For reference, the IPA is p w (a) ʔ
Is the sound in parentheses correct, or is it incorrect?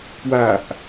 correct